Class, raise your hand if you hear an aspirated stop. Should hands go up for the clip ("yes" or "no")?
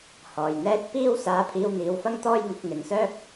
yes